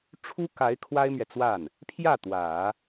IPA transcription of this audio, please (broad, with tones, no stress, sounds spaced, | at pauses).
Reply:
ʈ͡ʂʰ u˥ k a˧˥ ɪ̯ kʰ w a˥ ɪ̯ m ɥ ɛ˨ t͡s w a˥˩ n | pʰ j ä˥˩ t̪ w ä˨˩˦